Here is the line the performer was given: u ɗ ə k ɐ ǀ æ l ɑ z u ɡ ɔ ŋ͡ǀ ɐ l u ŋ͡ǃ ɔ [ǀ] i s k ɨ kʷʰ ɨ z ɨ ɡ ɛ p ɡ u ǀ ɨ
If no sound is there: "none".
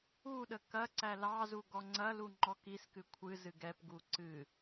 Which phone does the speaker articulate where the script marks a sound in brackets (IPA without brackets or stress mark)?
k